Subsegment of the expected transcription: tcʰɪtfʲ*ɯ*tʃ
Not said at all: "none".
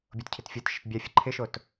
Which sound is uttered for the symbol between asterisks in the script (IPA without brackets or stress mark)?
ɤ